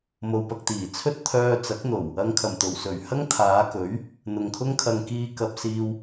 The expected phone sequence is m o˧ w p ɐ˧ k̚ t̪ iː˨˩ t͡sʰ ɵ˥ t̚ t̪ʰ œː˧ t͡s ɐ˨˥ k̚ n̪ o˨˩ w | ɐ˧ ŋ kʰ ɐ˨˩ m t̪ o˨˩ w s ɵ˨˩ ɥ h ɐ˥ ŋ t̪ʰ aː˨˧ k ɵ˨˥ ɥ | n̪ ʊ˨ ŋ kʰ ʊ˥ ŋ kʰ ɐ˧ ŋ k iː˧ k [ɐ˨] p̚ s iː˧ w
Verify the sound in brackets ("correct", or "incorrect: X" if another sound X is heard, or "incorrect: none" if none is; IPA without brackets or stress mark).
correct